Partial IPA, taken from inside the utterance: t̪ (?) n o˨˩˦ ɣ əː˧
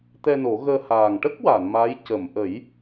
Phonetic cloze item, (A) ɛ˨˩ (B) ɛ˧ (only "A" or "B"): B